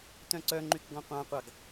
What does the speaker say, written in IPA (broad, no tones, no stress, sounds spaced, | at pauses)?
t œ̃ ǀ œ ŋ͡ǃ y k ɡ ɔ̃ qʷ ɑ̃ qʷ ɑ ɡ